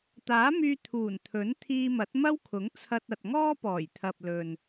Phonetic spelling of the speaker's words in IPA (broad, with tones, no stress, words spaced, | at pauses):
t̪aː˨˥myː˧ t̪ʰuː˨˩nt̪ʰɵ˨˥n t̪ʰiː˧mɐ˨˥t̚mɐ˥wkʰʊ˨˥ŋ t͡sʰɐ˧t̚ɐ˨t̚ŋɔː˥pɔː˨˩j t̪ʰɐ˨p̚lɵ˨n